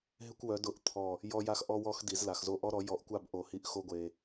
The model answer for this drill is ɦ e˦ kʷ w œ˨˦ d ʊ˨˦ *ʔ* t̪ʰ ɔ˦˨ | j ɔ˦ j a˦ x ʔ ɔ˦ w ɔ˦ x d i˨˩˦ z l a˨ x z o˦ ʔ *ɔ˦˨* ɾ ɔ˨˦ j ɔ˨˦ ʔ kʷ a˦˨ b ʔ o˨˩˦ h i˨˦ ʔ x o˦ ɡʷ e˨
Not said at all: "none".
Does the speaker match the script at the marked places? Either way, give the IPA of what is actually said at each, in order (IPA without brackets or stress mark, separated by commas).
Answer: ʔ, ɔ˦